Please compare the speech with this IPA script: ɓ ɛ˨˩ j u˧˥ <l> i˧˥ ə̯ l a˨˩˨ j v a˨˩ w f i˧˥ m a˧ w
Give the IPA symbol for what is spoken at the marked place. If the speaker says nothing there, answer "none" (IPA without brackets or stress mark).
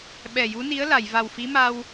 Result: n